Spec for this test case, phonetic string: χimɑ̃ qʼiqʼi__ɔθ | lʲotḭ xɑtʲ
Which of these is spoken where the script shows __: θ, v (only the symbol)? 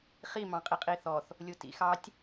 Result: θ